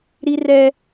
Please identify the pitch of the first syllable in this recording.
high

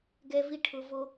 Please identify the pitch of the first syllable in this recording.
high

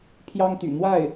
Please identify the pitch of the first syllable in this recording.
high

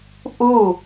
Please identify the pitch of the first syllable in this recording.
falling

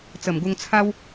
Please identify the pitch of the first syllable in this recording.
low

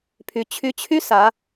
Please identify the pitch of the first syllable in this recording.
rising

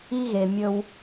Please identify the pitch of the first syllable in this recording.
high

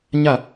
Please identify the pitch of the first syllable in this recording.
falling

